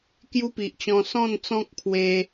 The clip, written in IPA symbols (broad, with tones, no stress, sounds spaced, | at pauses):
k j u˦ p i˨ ʔ t͡ɕ ɔ̃˧ s ɔ̃˥˧ n t͡s ɔ̃˦ k̚ pʰ w e˧